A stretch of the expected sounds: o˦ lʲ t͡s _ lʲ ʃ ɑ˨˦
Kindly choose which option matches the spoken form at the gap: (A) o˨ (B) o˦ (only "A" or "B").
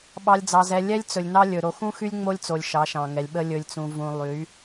A